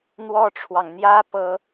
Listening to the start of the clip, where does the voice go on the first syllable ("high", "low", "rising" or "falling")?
high